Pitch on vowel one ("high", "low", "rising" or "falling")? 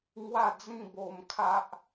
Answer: falling